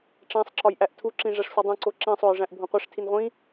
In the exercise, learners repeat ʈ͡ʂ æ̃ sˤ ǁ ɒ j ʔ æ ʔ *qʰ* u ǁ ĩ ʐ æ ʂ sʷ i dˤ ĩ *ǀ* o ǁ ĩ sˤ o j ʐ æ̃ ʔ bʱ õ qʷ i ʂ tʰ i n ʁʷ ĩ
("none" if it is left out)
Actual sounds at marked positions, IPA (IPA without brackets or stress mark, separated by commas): tʰ, ǀ